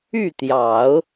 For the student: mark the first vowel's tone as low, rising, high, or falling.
falling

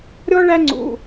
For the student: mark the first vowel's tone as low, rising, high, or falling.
high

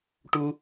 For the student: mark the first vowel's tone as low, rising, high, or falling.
high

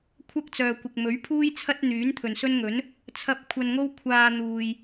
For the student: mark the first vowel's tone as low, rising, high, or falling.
high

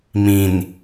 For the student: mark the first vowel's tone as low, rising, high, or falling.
low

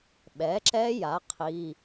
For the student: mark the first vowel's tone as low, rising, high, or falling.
rising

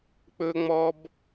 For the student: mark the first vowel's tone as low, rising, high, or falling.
high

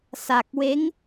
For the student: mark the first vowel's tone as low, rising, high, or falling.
low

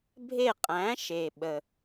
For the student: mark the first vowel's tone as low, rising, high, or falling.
falling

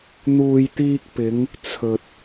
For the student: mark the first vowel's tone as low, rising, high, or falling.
low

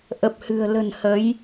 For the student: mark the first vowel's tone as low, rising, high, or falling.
low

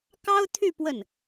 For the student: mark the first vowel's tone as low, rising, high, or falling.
high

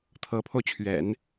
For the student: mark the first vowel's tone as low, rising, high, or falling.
rising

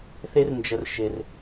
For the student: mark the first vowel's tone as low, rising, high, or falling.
high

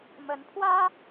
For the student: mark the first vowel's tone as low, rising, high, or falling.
rising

